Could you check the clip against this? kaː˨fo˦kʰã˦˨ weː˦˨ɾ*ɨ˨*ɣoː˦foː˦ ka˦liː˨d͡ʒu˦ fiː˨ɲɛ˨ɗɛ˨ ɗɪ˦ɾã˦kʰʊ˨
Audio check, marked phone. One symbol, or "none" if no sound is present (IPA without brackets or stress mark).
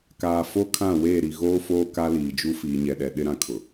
i˨